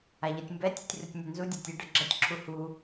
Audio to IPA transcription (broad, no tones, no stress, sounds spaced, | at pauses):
a ʎ ʌ tʲ m b ɛ tʲ u tʲ r u tʲ nʲ ɛ n z u dʲ a tʲ ɐ ɖ ʌ ɡ͡ǁ ʌ tʲ ǁʰ u h u